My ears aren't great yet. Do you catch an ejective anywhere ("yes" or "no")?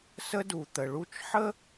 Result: no